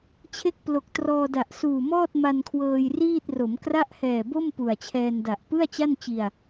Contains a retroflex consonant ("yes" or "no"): no